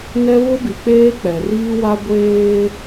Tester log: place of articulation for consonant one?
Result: alveolar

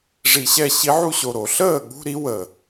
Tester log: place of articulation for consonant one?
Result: retroflex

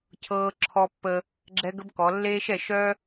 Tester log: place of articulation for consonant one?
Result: palatal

